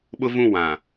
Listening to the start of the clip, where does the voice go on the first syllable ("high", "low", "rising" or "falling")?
high